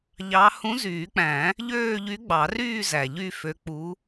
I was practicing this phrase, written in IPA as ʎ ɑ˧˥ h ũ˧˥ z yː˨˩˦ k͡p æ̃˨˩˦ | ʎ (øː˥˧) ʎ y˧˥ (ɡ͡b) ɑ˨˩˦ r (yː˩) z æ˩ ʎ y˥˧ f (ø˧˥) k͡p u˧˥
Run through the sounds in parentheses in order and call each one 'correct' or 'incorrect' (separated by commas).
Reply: correct, correct, incorrect, correct